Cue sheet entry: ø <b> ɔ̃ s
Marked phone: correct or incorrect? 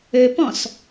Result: incorrect